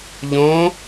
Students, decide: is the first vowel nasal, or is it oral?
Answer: nasal